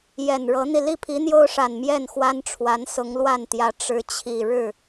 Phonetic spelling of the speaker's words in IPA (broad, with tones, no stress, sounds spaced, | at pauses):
j ɛ˨˩ n ɻ ɤ˧˥ n̪ i˧ l i˥˩ pʰ i˧˥ n̪ j o˥ ʊ̯ ʂ a˨˩ n m j ɛ˥˩ n x w a˥ n ʈ͡ʂʰ w a˧˥ n s ʊ˧˥ ŋ l w a˥˩ n t̪ j ä˧˥ ʈ͡ʂ ɻ̩˧˥ t͡ɕʰ i˨˩ ɻ ɻ̩˥˩